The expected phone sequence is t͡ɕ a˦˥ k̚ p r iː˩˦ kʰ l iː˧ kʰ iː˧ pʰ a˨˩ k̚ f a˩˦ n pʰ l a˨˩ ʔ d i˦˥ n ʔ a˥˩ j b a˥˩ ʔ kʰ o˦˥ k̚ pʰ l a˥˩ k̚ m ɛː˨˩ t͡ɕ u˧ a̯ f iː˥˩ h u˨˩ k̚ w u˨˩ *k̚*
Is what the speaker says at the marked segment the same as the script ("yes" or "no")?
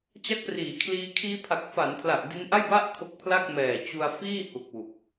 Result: yes